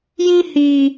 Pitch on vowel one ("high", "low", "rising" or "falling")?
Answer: high